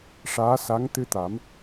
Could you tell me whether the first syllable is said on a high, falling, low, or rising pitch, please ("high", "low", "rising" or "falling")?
rising